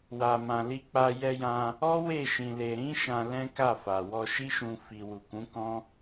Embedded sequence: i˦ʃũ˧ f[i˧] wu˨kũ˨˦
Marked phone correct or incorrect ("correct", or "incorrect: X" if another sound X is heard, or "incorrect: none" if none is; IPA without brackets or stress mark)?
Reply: correct